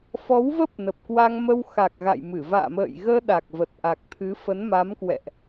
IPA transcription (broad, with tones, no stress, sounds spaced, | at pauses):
f ɔ˨˦ w v ə˦˥ p̚ n ə˨˩ p̚ k w a˧ ŋ m ə˧ w x a˨˩ k̚ ɣ a̰˧˨ j m ɨ˧˩ v a̰ː˧˨ m ə̰ː˧˨ j ɣ əː˧ ɗ a˨˩ k̚ v ə˨˩ t̚ ʔ a˨˩ k̚ t̪ʰ ɨ˨˦ f ə˨˦ n m a˨˦ m k w ɛ̰˧˨ ʔ